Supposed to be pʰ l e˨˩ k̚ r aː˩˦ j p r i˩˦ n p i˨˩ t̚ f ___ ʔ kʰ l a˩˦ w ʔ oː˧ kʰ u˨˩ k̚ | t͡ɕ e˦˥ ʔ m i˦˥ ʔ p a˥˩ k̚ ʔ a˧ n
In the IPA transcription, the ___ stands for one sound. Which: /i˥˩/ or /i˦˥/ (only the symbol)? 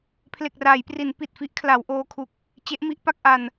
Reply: i˦˥